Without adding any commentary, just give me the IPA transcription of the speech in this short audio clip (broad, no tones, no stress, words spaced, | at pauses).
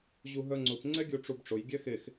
ʑuɦœŋ͡ǀʊp ŋ͡ǀɛɡʲuʈ͡ʂubʈ͡ʂʊj ɡʲɛxex